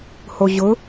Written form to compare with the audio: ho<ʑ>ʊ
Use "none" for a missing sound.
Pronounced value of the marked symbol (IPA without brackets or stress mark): ʑ